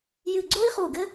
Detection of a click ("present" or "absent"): present